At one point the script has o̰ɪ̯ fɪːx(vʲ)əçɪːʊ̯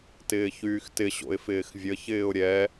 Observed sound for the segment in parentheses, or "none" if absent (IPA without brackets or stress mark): vʲ